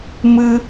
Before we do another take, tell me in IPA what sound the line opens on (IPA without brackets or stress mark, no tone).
m